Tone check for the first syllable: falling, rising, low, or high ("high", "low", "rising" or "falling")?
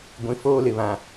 low